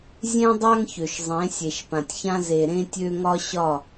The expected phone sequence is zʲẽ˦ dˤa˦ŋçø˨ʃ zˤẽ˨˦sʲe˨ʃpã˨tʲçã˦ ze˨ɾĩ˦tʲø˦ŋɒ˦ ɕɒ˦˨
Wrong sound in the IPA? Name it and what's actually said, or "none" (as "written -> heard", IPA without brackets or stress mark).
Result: ĩ˦ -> ẽ˦